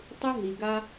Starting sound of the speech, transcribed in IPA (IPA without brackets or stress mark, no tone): tˤ